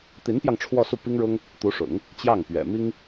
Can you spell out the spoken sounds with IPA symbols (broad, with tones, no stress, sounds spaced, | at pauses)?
t̪ i˧˥ n p j ɑ˧ ŋ ʈ͡ʂʰ w ɔ˥˧ s u˥˩ p i˥ ŋ ɻ ʊ˥ ŋ | t̪ u˧˥ ʂ ʊ̰˨˩˦ ŋ | t͡ɕ j ɑ˥˩ ŋ p ɥ ɛ̰˨˩ m i˥ ŋ